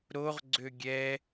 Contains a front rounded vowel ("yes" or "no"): yes